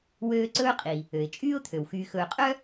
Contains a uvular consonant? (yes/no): yes